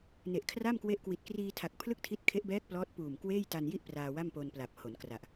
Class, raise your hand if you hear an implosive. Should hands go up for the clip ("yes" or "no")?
no